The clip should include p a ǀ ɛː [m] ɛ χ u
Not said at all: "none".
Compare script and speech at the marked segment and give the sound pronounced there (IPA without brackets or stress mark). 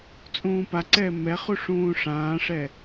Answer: m